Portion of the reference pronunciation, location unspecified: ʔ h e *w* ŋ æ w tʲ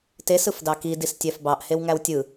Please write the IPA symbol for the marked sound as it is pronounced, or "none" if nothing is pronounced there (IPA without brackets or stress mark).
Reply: w